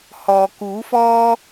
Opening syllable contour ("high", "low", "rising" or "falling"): low